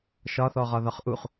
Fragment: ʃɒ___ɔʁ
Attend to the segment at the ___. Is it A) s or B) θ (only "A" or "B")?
B